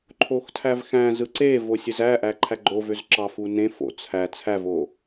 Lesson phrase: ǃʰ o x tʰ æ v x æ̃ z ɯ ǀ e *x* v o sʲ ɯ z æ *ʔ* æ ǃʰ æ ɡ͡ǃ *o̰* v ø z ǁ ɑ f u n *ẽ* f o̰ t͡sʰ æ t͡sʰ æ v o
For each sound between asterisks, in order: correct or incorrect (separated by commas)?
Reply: incorrect, correct, incorrect, correct